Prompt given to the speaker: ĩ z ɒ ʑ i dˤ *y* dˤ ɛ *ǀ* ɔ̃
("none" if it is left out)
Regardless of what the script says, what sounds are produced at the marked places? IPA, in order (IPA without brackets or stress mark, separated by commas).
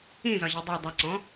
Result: y, ǀ